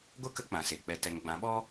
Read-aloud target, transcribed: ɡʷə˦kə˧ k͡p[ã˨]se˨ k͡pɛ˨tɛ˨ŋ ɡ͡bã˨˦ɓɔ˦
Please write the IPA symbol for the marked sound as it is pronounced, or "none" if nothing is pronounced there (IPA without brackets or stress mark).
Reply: ã˨